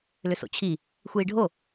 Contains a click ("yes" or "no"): no